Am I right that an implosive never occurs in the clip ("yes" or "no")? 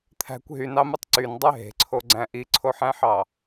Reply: yes